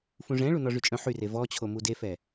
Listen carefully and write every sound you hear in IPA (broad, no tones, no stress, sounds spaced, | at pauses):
f ũ ʐ ɛ̃ ɭ u n ɔ ʐ y t͡ʃʼ œ̃ ħ y r e v ɔ t͡ɕʰ o m u d e f ɛ